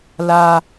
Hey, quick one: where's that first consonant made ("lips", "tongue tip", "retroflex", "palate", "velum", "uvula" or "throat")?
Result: tongue tip